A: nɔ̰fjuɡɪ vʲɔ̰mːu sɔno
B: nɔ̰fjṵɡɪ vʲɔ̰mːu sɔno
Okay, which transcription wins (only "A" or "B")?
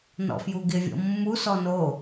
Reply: A